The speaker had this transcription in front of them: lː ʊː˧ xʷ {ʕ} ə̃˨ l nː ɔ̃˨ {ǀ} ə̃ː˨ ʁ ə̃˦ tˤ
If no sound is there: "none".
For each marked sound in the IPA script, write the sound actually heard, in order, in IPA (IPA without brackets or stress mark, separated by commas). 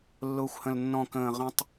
h, k